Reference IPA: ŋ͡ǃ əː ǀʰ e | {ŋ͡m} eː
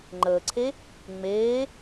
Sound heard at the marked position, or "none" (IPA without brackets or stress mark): ŋ͡m